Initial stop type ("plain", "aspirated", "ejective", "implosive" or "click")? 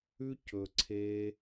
plain